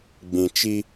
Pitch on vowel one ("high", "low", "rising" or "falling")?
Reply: low